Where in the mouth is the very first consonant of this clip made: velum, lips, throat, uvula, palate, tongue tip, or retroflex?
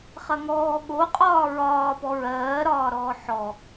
uvula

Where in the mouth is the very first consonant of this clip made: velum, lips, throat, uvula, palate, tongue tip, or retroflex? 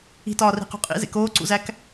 tongue tip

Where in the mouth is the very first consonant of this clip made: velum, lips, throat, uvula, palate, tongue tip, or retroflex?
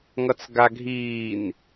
velum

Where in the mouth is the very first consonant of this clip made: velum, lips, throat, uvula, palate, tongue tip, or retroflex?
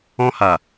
throat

